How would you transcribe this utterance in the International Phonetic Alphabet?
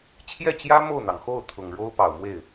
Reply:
t͡ɕʰ j ɛ˥˩ t͡ɕ j ä˥ m o˥˩ ʊ̯ n̪ ɑ˩ ŋ x o˥˩ ʊ̯ t̪ʰ ʊ˨˩ ŋ ɻ o˥ ʊ̯ p ɑ˨˩ ʊ̯ m w e˥˩ ɪ̯

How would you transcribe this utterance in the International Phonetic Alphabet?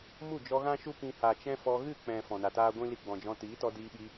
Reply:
m u˦˨ d͡ʒ ɔ˧ ɣ ã˦ ʃ u˦ p ĩ˧ h a˨ t͡ʃ ɛ̃˦ f ɔ˧ ɣ ɨ˦˨ k͡p ɛ̃˨ f ɔ̃˨ n a˨ t aː˦ ɡʷ ĩ˦ l i˧ ɡ͡b ɔ̃˨ d͡ʒ ɔ̃˧ t iː˨˦ t ɔ˧ d iː˧ ɓ i˧

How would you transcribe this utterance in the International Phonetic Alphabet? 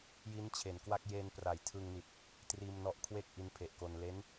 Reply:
j i˦˥ n t͡ɕʰ e˩˦ n k w a˥˩ k̚ j e˧ n p r a˩˦ j tʰ ɯ˧ ŋ n i˨˩ t̚ | t r iː˧ m n ɔ˦˥ ʔ kʰ w e˥˩ k̚ ʔ i˦˥ n pʰ e˨˩ ʔ k o˧ n l e˦˥ n

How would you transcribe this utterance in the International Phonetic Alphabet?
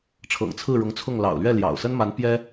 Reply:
ʈ͡ʂʰ ɤ̰˨˩ ŋ t͡sʰ ɹ̩˥˩ ɻ ʊ˧˥ ŋ t͡sʰ ʊ˥˩ ŋ l ɑ̰˨˩ ʊ̯ l ɥ ɛ˥˩ l j ɑ̰˨˩ ʊ̯ s ə˥ n m a˧˥ n p j ɛ˥

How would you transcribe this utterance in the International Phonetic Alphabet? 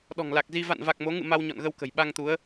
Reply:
ɗ ɔ̤˨˩ ŋ l a˨˩ k̚ z i˧ v a̰˧˨ n v a˨˩ k̚ m o˨˦ ŋ ɨ̰˧˨ m a˧ w ɲ ɔ̰˧˨ n ɣ ə˧ w k ə̤˨˩ j ɓ a˧ ŋ t̪ u˨˦ ə̯

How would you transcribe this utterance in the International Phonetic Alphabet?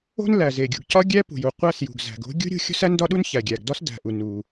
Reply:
o̤˥ n l æ˩ z e˩ ɡʲ ṳ˩ ɡ c ɒ˥ ɡʲ æ˥ p ṳ˩ j u˩ qʷ æ˥ s j ṳ˩ ɡ z æ̤˩ ɡ o̤˥ ɡʲ ṳ˥ ɾʲ ṳ˥ xʲ o̤˥ s æ˥ n d ɒ˥ ɗ u˥ n ç æ˩ ɡʲ æ˩ ɡ d ɒ˥ s d æ̤˩ ʔ u˩ n u˩

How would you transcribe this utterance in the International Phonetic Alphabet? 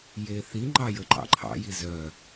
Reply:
j e θ i ŋ͡ǃ ɑ j ə ǃ ɑ̰ ǃʰ ɑ̰ j i z œ

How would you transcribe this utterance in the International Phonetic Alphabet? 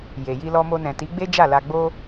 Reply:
j e˨ j i˧ l ɔ˧ m o˧ n ɛ̃˨ t i˨˦ ɡ͡b e˦ d͡ʒ a˦˨ l a˧ ɡ͡b o˦

